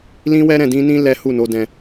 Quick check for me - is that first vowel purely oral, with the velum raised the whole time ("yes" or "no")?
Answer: no